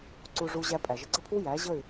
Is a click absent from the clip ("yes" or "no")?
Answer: no